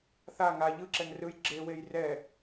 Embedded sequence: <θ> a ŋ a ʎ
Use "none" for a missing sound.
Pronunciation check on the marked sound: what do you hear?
θ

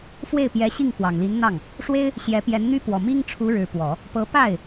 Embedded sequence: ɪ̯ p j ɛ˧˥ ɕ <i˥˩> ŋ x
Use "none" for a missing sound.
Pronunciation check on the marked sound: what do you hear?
i˥˩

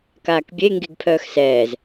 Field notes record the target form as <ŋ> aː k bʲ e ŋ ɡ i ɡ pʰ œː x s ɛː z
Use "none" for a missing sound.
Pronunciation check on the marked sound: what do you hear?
k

